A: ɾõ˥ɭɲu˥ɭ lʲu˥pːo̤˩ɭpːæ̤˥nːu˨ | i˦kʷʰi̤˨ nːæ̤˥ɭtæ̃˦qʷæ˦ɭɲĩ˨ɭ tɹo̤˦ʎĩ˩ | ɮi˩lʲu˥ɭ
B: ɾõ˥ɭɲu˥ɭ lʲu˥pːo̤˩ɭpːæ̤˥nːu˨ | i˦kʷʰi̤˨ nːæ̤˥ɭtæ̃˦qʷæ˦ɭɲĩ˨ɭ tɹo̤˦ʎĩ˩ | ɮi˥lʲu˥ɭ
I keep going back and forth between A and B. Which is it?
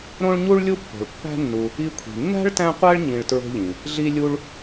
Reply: B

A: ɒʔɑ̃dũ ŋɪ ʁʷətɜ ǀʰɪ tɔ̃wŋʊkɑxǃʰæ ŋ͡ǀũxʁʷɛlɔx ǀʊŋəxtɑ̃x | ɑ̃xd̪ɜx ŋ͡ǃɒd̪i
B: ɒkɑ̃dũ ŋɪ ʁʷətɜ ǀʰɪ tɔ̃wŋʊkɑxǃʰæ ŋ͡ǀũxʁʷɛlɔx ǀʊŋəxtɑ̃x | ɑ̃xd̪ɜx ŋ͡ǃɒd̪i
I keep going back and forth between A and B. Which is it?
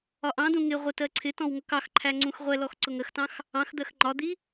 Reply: A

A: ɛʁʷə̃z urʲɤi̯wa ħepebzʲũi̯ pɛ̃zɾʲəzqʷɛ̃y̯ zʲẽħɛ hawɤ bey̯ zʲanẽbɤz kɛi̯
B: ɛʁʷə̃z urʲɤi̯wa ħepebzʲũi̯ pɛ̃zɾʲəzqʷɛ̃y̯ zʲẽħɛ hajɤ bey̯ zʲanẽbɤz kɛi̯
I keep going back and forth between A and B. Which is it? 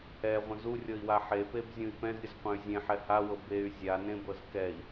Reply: A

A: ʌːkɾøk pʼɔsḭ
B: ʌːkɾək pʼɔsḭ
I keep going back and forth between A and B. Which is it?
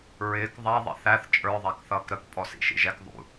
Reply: B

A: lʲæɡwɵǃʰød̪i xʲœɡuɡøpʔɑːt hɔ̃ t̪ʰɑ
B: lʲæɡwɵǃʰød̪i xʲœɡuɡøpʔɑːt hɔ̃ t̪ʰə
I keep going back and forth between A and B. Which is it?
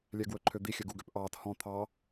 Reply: A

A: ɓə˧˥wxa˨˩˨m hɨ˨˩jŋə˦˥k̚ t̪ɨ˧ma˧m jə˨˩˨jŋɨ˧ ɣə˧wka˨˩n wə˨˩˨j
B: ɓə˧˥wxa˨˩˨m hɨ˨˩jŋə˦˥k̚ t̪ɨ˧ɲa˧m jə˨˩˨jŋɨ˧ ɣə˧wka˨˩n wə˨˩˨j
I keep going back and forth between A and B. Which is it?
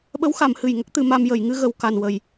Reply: A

